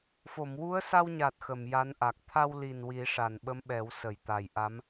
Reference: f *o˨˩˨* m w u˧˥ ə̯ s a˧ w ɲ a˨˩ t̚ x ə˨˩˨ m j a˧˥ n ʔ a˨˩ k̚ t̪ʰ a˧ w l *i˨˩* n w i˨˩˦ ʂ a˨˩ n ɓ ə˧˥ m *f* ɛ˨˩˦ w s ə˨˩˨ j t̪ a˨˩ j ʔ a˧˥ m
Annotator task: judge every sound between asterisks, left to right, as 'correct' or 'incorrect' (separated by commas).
correct, correct, incorrect